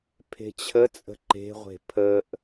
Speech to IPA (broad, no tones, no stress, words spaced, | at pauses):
pʰe̤t͡ɕʰət͡sʼə̤ ǃe̤ʁʷe̤ pʰəʔ